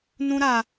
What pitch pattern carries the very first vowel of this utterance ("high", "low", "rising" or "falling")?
high